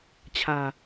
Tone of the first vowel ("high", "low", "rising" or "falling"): low